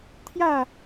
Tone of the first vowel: falling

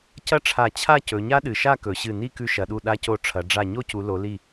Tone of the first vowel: high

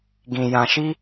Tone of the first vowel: low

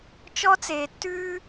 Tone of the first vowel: high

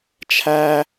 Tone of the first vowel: high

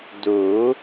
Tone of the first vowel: rising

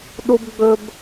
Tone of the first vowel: high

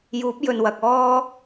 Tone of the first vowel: rising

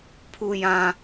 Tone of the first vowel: low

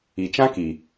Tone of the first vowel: low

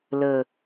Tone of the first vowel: low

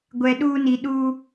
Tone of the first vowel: low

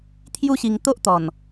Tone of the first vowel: high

